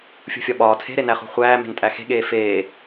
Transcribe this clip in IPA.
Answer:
fʲṳfʲɒɓɒː tʰe̤ɾenæ χṳχʷæːme̤n tʼæxe̤ɠeː feː

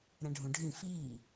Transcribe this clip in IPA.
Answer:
ɾɛ̃ɖʱũɖʱĩ fiː

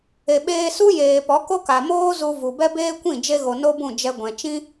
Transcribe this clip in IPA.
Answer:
e˨ ɓeː˧su˦ jeː˨ pɔ˨˦ko˦ka˨moː˦ zu˧vu˨bɛ˦ beː˦kʷĩ˦˨ d͡ʒe˧ɣo˨ no˧ bũ˦˨d͡ʒɛ˧ɡʷɛ̃˨ t͡ʃĩ˦

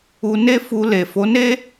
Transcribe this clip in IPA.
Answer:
u˧ne˦ fu˧ le˨fo˨˦ne˦

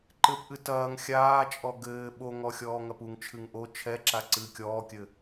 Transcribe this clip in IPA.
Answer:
ǃɘpʔɨ tɐːŋ xʲaːt͡ʃʼɔ ɡɘː ɓoŋɔ xʲɔːŋɐpuŋt͡ʃʰɨŋ ʔo t͡ʃʰɛǁa ǀɨːkʲɔːkʲɘ

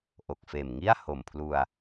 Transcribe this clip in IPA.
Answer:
ʔo˨˩k̚feː˨˩m ŋi˥˩a̯ ho˨˩mpʰlu˧a̯

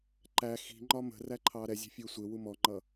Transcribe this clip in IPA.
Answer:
ǃæ xi̤ŋ͡ǃɒ mə̤ræ ǃʰɑːɾɛzʲɛ̤ fʲʊːsʷɪwu mɔŋ͡ǃʌ

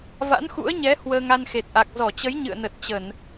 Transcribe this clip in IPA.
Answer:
va̰˧˥nxṵ˧˥ə̯ɲɛ˨˦ hwəː˧ŋa˧nxe˨˩t̚ʔa˨˩k̚ zɔ˧˩t͡ɕə˨˦jɲɨ̰˧˨ə̯nə˨˩t̚ t͡ɕə˧˩˨n

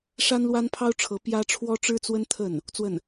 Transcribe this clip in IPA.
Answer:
ʂa˥nlwa˥npʰɑ˥ʊ̯ʈ͡ʂʰɤ˧˥ pjä˥ ʈ͡ʂʰwɔ˥ʈ͡ʂɻ̩˥t͡swə˥n t̪ʰə˥˩n | t͡swə˥˩n

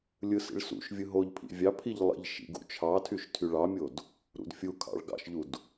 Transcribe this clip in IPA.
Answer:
lʲɯsḭɭsṵʃvʲɯ ɦoʎ pʰḭvʲɑpʰiʎ lˠḭʎʃḭ ɡṵt͡ʃʰɑtʰyʃ tʰyɭɑmʲod | ɾṵdfʲukʰɑ̰ɭ ɡɑ̰ʃʎud

